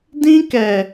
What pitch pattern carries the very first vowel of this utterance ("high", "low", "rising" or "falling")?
high